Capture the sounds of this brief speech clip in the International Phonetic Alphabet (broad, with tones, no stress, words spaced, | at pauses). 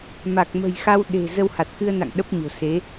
ma˨˩k̚mə̤˨˩jxa˧w ɗe̤˨˩ zə˧wha˨˩t̚xɨ˧ə̯na̰˧˨ŋ ɗə˦˥p̚ɲo̤˨˩se˨˦